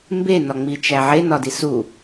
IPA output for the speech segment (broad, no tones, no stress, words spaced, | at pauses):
mbenɒŋ͡mit͡ʃæ ʕenɒdis u